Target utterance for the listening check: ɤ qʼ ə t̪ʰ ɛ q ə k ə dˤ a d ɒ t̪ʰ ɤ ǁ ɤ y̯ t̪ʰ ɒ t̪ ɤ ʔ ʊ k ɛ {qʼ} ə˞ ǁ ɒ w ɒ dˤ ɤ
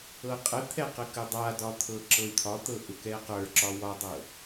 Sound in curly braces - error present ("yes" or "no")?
yes